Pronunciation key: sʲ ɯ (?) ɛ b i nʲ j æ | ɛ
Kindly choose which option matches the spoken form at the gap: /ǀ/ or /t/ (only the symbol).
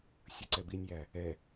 ǀ